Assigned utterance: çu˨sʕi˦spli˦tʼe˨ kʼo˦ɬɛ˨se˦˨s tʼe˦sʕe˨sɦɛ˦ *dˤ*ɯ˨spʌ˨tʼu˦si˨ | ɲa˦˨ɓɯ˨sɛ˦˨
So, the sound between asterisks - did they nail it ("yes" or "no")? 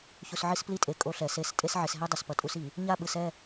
yes